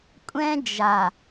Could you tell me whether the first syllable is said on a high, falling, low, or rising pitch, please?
high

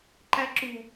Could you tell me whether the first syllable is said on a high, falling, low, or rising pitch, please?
high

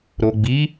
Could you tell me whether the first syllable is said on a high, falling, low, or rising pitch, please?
low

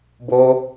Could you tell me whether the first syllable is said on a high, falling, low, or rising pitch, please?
high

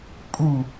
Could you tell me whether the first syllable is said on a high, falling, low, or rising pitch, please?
falling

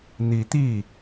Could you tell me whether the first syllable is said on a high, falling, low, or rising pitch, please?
rising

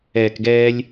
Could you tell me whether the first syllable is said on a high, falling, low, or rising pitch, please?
low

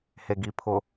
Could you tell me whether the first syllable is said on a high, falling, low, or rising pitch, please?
low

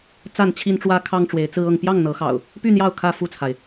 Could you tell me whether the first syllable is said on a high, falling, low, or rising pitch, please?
falling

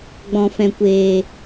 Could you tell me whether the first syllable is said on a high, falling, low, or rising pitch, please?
low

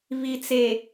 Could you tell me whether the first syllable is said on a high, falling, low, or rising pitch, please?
low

